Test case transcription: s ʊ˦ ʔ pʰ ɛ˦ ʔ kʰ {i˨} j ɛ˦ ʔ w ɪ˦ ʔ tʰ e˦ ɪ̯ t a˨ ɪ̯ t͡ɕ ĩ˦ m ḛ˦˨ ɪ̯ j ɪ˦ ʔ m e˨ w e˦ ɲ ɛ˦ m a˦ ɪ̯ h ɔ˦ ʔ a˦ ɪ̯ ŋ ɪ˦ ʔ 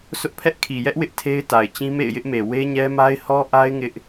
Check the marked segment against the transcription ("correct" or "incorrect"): correct